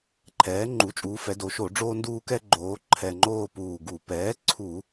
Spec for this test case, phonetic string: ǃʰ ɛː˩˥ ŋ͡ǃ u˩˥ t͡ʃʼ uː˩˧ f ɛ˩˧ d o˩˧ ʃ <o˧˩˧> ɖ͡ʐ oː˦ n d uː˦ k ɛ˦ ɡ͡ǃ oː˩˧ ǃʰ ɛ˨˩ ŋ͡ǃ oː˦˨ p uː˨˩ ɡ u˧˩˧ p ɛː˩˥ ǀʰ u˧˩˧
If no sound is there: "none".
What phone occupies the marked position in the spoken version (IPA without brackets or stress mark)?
o˧˩˧